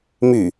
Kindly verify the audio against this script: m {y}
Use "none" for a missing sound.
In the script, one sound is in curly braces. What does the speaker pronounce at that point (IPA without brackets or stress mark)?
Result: y